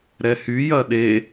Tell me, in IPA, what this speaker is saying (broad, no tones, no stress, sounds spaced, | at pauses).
ɾ ɛ h y j ɐ ɗ e